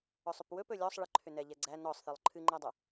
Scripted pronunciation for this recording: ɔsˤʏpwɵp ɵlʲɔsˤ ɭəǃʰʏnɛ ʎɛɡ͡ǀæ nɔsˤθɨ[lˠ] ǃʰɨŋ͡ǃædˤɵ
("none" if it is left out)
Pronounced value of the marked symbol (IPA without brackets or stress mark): lˠ